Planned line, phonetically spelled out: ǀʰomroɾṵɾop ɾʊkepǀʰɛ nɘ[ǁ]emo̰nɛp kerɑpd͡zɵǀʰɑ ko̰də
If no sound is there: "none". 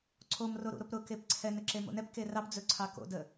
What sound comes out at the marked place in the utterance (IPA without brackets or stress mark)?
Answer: ǁ